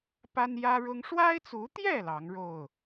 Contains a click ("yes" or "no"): no